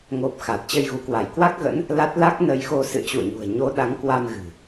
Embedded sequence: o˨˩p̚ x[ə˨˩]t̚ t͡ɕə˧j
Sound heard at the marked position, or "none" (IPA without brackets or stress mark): a˨˩